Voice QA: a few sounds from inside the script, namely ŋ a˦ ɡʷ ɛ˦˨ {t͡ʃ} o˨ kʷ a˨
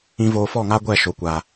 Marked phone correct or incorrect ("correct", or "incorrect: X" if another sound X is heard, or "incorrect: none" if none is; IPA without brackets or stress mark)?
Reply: incorrect: ʃ